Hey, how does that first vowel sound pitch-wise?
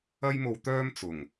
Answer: high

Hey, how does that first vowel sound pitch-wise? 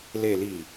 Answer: low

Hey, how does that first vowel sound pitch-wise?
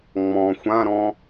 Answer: low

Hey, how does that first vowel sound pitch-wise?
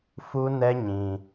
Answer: high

